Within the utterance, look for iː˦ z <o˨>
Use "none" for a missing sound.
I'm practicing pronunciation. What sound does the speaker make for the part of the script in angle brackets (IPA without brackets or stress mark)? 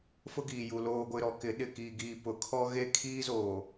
oː˨